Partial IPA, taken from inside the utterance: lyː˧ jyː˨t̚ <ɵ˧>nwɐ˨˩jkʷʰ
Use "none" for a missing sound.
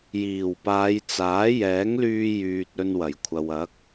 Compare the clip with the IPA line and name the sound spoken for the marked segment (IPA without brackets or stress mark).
ɵ˧